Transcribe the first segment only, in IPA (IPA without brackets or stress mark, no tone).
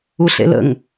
u